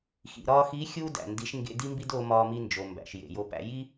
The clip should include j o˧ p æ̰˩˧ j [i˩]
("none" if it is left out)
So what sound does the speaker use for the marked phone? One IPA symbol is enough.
i˥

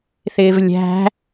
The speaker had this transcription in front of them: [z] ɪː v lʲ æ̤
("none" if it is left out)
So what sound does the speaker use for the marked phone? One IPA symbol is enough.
θ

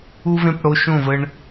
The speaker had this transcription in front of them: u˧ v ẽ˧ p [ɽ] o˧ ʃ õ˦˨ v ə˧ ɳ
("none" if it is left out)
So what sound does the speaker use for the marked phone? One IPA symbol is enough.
ɽ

